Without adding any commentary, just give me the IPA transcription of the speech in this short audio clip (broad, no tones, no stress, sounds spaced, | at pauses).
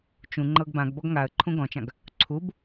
t͡ʃ ũ ŋ͡ǃ ɤ ɡ b ã ɡ b ɔ ɡ ŋ a ə̯ ǃʰ ũ ɡ ɔ̃ t͡ʃ ã ɡ | ǀʰ u b